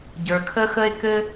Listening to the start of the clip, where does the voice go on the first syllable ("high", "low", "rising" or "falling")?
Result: low